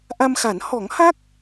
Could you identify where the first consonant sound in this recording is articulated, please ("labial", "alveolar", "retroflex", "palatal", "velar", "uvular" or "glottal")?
glottal